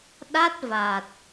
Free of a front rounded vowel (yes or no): yes